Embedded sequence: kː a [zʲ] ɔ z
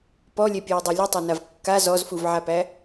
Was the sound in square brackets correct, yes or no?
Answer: no